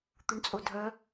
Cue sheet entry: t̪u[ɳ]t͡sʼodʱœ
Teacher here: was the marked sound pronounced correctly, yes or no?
yes